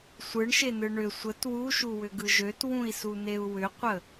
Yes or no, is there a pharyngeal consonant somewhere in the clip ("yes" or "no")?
no